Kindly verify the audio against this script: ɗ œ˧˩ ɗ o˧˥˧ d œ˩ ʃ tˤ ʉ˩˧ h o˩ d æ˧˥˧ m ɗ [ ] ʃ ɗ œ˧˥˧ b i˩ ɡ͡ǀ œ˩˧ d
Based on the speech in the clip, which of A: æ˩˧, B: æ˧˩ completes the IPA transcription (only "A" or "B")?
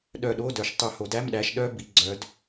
A